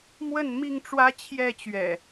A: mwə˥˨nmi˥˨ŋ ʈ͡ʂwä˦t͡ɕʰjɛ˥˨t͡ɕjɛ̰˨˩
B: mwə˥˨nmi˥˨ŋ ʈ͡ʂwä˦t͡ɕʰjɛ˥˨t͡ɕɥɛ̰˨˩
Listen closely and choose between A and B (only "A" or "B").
B